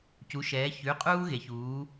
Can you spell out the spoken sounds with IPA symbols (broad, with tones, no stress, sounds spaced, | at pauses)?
c u˩˧ ʃ ɛː˩˧ ç ʉ˩˧˩ qʼ uː˦ ɣ e˩˧ ç uː˩˧